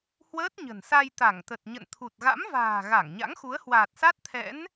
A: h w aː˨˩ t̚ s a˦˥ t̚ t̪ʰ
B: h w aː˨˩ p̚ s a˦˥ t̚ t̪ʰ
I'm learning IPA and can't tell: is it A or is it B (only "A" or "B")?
A